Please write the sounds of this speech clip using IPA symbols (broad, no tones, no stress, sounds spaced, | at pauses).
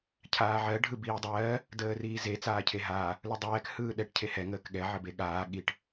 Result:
cʰ aː ʕ ɜ ɖʱ ɯ b iː dˤ ɜː | d əː r iː z e t͡s aː cʰ e ɦ aː | l ɯ dˤ ɛː k h ɯː ɗ ɛ ʈ cʰ e h ɛ ŋ əː k ɠ ɛ ʕ ə b e ɠ aː ɠ i ʈ